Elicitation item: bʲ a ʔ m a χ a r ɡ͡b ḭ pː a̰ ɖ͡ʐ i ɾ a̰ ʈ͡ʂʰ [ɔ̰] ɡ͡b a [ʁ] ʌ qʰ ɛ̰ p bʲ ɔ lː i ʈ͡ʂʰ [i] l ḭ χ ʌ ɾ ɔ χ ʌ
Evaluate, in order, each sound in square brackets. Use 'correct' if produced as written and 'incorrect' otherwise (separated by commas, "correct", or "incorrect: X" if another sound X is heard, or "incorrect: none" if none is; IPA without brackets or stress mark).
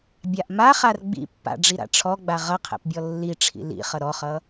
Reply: incorrect: ɔ, correct, incorrect: ḭ